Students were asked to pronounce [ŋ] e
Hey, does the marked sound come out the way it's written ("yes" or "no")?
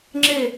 no